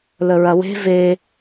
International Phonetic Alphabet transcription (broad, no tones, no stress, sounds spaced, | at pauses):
l ə ɹ ɐ w e̤ v e